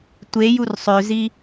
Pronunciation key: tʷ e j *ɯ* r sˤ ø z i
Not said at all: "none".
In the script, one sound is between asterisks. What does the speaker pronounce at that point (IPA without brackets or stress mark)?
u